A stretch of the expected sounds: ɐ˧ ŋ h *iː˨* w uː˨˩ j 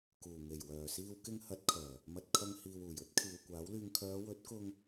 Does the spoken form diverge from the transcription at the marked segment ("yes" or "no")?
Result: no